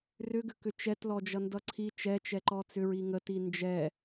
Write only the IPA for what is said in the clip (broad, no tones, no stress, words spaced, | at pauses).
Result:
rʏɡʏkʏ t͡ʃɛtlɔd͡ʒʌndʌ ǀʰi t͡ʃɛt͡ʃɛǃɔ t͡sʏɹi ŋəti nd͡ʒɛ